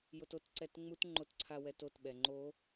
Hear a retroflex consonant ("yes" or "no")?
no